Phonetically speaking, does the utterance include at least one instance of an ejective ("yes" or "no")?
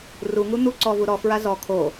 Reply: no